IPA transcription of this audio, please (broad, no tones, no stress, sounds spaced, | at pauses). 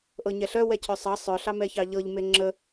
ʔ ɤ ɲ ɛ ɬ œ w ɛ cʰ œ sˤ ɑ sˤ œ ɬ ɑ m ɛ ç ɑ ʎ ɤ ʎ m e ŋ͡ǁ ə